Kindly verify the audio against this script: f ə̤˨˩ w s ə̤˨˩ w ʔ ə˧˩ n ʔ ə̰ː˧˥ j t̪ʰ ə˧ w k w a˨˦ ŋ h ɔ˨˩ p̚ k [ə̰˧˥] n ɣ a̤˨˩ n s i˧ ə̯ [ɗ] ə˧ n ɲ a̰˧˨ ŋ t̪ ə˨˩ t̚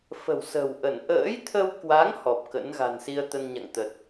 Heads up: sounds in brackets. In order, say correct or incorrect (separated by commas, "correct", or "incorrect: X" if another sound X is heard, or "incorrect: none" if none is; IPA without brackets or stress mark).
correct, incorrect: t̪